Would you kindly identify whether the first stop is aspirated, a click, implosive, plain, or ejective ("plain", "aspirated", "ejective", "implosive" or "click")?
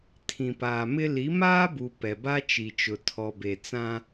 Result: aspirated